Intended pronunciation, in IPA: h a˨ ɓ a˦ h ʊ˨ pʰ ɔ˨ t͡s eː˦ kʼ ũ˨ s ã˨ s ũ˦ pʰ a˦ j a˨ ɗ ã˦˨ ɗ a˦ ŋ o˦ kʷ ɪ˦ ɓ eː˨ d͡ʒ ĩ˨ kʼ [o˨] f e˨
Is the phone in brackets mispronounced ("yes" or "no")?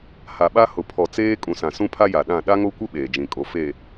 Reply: no